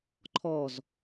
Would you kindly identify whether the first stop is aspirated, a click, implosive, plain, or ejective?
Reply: click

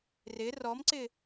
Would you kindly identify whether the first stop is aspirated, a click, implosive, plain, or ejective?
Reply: click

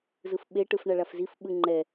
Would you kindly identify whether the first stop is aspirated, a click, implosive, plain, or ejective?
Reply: implosive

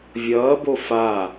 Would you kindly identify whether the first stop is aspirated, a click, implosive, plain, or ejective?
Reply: plain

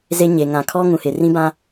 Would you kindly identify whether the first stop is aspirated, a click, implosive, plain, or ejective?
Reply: aspirated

